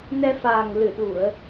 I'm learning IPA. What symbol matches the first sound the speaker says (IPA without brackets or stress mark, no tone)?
n